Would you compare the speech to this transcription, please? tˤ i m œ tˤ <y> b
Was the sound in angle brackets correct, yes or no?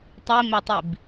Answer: no